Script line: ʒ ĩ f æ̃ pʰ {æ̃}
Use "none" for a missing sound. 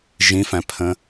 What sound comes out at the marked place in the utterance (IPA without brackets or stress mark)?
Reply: ə̃